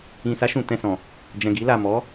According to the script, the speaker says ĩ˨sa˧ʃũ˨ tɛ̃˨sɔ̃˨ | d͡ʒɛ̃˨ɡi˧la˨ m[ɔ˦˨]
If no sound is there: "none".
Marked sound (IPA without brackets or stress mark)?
ɔ˨˦